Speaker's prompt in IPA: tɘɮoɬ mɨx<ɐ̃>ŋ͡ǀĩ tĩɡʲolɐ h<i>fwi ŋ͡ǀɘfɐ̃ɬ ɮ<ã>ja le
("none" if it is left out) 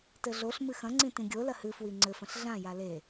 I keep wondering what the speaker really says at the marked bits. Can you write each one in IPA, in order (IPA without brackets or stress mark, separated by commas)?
ɐ̃, ɨ, ã